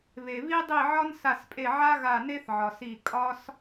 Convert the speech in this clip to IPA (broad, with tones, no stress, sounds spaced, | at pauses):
β e˨ β i˥ dˤ i˦˨ ʕ ɒ˥ n s a˦˨ s pʼ e˦˨ ʕ a˥ ɣ a˦˨ n e˥ θ ʕ ɒ˨ s i˦˨ kʼ ɒ˥ s